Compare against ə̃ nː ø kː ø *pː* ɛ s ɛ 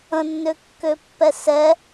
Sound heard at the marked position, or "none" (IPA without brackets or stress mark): pː